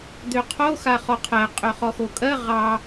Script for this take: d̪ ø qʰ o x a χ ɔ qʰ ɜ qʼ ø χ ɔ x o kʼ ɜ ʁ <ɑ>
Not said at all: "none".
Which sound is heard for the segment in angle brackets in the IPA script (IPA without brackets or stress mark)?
ɑ